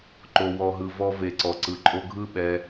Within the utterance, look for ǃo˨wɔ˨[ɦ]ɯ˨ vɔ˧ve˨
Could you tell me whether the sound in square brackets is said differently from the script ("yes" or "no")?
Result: no